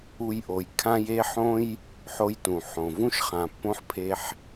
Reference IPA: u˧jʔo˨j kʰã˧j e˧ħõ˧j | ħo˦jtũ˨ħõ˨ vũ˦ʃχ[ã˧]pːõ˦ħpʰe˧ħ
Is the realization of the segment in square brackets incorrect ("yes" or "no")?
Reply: yes